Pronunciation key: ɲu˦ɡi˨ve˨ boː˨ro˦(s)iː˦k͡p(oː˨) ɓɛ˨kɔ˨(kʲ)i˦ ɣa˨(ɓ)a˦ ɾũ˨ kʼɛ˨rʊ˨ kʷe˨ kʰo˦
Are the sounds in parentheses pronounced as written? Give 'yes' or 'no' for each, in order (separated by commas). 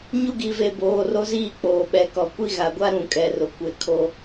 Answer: no, yes, no, no